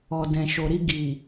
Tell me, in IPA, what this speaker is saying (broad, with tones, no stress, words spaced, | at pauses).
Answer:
ɔ˨dɛ̃˨ʃo˨ɾi˧ ɡi˨